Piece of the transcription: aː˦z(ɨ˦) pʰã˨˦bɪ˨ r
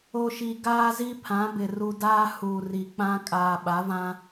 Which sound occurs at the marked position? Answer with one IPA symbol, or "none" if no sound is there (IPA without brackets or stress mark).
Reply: i˦